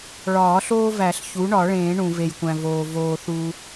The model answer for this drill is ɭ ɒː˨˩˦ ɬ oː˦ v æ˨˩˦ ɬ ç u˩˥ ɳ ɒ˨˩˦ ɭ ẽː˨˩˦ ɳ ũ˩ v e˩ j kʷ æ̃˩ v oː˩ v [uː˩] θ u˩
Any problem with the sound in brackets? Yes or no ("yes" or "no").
yes